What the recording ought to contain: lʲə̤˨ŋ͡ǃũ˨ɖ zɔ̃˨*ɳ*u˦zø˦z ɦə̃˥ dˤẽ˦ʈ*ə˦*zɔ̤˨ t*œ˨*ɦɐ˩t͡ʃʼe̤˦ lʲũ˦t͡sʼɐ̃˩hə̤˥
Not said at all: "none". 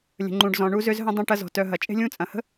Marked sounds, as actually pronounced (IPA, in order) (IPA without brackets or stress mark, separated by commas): ɳ, ɐ˦, œ˨